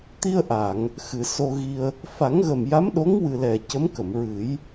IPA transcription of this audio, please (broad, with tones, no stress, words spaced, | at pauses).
t̪i˧ə̯ʔa˨˩˨ŋ | xɨ˨˩˨so˧ɣi˧ə̯ | fa˨˩˦ŋɣə˨˩m ja˧˥mɗo˧˥ŋwɨ˨˩ lɛ˨˩cə˧˥mkə˨˩˨mɹɨ˨˩˦j